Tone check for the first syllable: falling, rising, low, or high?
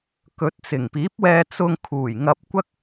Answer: rising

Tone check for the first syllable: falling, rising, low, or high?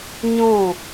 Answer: falling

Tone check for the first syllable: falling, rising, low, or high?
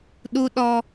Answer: high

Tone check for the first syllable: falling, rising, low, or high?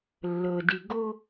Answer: low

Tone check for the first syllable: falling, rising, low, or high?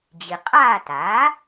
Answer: low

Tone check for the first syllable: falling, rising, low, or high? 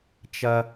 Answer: low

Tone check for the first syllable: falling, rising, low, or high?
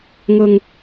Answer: low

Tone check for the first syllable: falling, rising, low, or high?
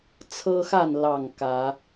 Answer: high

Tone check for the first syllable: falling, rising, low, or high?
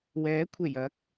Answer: rising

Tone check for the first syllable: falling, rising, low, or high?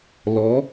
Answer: rising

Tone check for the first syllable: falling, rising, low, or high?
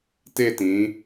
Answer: falling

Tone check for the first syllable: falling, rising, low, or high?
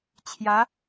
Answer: rising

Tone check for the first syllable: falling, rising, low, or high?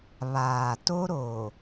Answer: low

